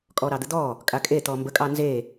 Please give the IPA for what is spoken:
kʼɔɾɑd̪əd̪ɔ | kʼakʼe t̪ɔmbə kʼɑnze

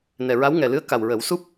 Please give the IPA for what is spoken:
nɛ˨˩ɹa˧˥wŋɛ˨˩lɨ˧˥ə̯ ka˨˩wɹə˨˩˦w su˦˥p̚

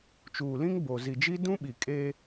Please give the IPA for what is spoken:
t͡ʃuː˨lĩ˦ŋ boː˨ zi˨d͡ʒi˦ dũ˦ɓi˨kʼeː˦

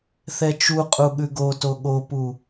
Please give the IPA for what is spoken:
θɛt͡ʃuqʼu ɠʉɡoto ɠopu

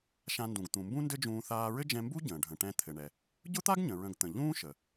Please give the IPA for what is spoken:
ʃã˧ndũ˩ɡ t̪ũ˩mbũ˥ndɘ˥d͡ʒũː˧ θaː˧ɹɘ˥d͡ʒɛ̃˧mbu˥ ɟə̃ː˩ ɖʱə̃˩ʈɛ̃˧ t̪ʰɘ˩ɳɛ˩ | ɟʊ˥t̪a˥ɡɲə̃˩ ɹə̃˧ɡ t̪ə̃˩ ʎũː˥ʃə˩

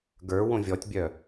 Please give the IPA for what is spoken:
ɡə˞ wõvʲɔtʲbʲœ

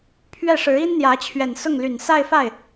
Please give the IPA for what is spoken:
pʰɥɛ˥˩ʂɻ̩˧˥ i˥nn̪jä˧˥ t͡ɕʰɥɛ˨˩nsʊ˥˩ŋly˨˩n sa˥˧ɪ̯fa˥˩ɪ̯

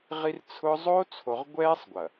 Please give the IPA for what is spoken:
ʁi˦rt͡sʰʊ˦ zˤo˦ t͡sʰo˨ʁ ɡʷɛː˦sˤɡʷɐ˨

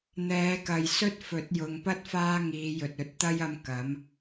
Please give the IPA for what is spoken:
n̪ɛː˨˧kɐ˨jsɵ˥t̚fɵ˨˥t̚ jʊ˨ŋpɐ˥t̚ faː˥ŋiː˨˧jɵ˨t̚ ɵ˨˥t̚t̪ɐ˥jɐ˧m kɐ˨˥m

